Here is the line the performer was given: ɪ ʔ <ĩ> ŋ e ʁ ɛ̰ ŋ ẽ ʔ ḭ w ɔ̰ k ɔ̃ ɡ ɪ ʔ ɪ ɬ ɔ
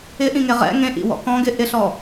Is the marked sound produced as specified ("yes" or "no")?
yes